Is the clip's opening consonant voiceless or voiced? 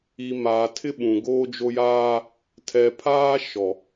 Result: voiced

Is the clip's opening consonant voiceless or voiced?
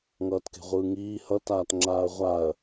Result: voiced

